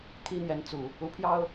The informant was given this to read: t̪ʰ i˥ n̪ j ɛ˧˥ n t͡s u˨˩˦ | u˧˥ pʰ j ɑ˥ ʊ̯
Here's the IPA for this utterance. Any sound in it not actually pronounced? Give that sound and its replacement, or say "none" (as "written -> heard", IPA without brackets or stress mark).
none